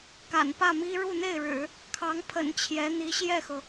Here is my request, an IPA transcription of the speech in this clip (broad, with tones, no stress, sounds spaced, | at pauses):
k a̰˨˩ n p ä˥˩ m i˥ ɻ u˥˧ n̪ e˥˩ ɪ̯ ɻ ɻ̩˨˩˦ | kʰ ɑ˧˥ ŋ pʰ ə̰˨˩ n t͡ɕʰ j ɛ˧˥ n̪ i˧˥ ɕ j ɛ˥˩ x ɤ˩